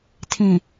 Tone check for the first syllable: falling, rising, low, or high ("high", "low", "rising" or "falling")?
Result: low